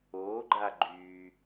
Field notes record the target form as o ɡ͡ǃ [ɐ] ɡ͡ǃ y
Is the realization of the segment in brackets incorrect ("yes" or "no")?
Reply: yes